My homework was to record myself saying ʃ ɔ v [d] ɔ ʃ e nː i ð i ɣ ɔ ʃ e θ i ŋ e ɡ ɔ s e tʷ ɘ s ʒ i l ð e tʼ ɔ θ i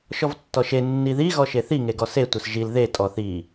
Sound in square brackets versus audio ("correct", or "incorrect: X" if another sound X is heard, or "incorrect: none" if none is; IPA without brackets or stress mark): incorrect: tː